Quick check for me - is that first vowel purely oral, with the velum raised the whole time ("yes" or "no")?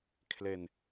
yes